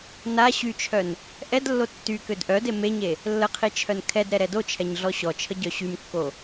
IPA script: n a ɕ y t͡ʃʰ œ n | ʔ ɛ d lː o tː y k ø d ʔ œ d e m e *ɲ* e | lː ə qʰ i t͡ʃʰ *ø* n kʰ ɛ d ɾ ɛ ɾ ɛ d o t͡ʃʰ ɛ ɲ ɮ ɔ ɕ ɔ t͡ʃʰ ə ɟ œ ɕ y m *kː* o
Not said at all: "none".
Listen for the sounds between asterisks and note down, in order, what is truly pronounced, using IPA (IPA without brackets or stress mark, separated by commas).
ɲ, œ, kː